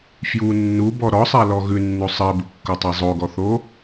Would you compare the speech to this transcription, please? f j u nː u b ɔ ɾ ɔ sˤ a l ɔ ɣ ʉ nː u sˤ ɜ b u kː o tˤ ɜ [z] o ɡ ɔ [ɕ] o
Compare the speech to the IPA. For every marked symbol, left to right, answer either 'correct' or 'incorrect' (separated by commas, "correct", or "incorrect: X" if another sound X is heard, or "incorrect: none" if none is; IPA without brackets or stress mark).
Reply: incorrect: zˤ, incorrect: θ